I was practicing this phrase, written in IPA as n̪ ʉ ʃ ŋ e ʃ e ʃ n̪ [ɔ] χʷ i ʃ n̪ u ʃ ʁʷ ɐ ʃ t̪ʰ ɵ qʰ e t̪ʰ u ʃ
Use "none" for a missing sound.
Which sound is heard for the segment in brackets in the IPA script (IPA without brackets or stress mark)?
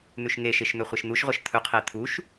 ɵ